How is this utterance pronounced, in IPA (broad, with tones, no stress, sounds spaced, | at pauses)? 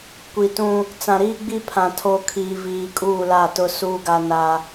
kʷ i˨ t ũ˦ | t͡s ã˨ ɾ iː˦ ɡ͡b i˦ pʰ ã˨ tʰ o˨ kʰ iː˨ v iː˨ kʼ uː˦˨ l a˦˨ t ʊ˦ s uː˦ ɡ a˦ n a˦